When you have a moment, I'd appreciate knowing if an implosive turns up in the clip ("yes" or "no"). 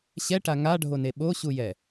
yes